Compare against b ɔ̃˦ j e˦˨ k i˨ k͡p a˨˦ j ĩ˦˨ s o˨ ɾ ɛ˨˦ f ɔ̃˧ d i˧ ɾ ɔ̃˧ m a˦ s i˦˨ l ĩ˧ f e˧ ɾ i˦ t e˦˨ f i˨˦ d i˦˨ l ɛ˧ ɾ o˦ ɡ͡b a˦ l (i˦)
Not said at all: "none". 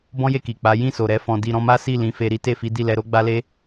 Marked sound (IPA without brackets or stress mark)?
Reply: e˦